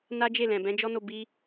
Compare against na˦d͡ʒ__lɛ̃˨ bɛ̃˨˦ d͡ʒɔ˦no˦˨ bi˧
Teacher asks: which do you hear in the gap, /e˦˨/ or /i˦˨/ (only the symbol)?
e˦˨